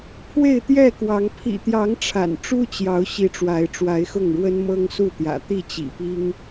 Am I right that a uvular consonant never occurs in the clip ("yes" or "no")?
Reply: yes